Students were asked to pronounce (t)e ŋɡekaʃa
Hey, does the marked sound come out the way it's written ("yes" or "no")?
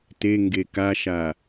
yes